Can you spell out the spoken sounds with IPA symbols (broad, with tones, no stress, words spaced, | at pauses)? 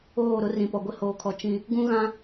oː˦˨ɾʊ˦ rĩ˨pɔ˨ɡʷɪ˦ hoː˨kʰɔ˨ t͡ʃĩ˦ | ɡũ˦ɣã˦